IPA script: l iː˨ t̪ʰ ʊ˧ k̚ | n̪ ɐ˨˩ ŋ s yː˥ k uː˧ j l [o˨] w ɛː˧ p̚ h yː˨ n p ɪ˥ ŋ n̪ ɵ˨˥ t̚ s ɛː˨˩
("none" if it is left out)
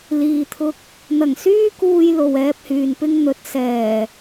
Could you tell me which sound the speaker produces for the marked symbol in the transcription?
o˨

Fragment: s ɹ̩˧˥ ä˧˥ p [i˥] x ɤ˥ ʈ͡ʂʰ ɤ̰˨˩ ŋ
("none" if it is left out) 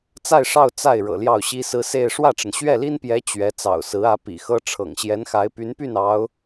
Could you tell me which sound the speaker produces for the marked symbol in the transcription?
ḭ˨˩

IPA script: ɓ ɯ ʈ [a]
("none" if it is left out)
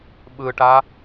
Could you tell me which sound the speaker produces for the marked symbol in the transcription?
a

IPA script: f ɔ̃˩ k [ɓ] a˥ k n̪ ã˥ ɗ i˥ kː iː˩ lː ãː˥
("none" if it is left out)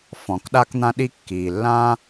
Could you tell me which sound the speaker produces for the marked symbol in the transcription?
ɗ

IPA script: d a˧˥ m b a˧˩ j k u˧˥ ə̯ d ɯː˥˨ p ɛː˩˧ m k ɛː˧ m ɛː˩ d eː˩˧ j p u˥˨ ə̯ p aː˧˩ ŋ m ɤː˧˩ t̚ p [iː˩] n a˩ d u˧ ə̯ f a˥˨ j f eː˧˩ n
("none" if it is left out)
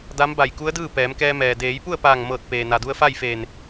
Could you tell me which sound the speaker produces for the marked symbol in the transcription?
eː˩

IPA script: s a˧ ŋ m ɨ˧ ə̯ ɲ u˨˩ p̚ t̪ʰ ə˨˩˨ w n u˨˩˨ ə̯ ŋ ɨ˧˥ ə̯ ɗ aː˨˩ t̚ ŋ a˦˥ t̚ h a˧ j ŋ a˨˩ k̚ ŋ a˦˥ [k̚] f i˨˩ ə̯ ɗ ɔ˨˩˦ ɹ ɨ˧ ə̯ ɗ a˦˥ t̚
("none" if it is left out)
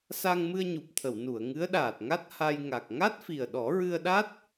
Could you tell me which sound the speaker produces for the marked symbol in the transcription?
t̚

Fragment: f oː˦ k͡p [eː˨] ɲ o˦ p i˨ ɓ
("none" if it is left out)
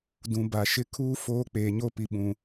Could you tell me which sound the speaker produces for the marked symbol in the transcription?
eː˨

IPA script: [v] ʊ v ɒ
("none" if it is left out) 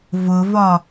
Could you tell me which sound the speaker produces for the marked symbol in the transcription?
v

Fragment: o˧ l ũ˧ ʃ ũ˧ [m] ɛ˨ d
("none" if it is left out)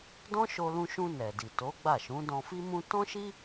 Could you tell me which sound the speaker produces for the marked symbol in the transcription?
n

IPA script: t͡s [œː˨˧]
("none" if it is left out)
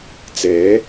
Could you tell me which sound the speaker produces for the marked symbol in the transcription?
ɛː˨˧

